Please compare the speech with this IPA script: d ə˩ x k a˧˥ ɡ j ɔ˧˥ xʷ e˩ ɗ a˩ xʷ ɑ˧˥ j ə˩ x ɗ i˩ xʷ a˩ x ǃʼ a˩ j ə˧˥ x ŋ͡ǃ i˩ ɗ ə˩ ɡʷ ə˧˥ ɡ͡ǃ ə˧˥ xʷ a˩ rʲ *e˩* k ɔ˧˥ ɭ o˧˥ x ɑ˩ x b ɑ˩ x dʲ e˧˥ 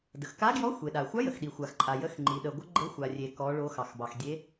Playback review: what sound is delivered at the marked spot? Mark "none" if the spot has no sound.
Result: e˩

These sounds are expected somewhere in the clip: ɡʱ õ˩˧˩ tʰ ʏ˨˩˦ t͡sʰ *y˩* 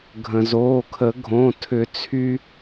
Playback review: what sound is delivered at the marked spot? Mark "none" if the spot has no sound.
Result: y˧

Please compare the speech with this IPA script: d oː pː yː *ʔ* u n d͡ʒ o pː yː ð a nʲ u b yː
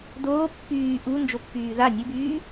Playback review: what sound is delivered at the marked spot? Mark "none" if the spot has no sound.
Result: ʔ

